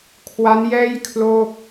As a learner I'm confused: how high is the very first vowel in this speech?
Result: low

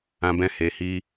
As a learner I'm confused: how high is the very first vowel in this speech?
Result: low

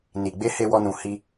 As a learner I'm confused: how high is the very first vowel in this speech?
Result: high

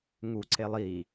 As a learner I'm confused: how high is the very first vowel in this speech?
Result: high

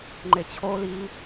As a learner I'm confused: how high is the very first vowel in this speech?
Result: mid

